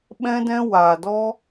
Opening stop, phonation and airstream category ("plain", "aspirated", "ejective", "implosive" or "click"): implosive